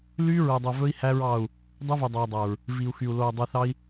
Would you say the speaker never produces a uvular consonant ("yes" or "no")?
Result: yes